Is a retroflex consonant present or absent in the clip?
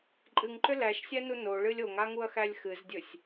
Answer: present